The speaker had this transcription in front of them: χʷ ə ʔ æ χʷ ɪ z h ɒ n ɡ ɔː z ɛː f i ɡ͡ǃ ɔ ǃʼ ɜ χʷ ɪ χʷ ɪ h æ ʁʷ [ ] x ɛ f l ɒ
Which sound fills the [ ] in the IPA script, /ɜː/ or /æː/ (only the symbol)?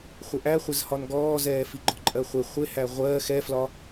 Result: ɜː